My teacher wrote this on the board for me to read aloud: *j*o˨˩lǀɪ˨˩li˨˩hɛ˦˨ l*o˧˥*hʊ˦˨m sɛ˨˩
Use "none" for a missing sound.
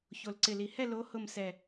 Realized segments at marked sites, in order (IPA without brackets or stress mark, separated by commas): ç, o˧˥